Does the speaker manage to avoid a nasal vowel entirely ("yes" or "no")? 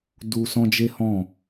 no